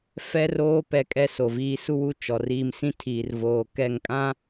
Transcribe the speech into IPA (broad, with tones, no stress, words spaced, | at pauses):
fɛ˦roː˦ pɛ˦kʼɛ˦so˨viː˦ su˦wu˦ t͡ʃɔ˨ riː˦m sĩ˦tʰiː˨r voː˨kɛ˦˨ŋ kʼã˦